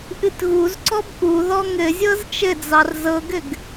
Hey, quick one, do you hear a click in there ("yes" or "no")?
yes